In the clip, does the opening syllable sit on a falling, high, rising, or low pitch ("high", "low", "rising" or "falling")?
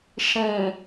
low